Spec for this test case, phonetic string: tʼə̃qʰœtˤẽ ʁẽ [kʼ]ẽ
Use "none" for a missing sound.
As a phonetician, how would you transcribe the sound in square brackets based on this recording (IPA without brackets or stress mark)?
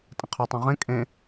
kʼ